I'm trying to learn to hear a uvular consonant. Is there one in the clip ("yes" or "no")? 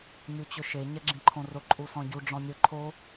no